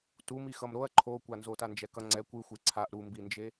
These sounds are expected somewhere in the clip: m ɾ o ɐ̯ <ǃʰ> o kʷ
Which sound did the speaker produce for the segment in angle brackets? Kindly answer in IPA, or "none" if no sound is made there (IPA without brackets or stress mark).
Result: ǃʰ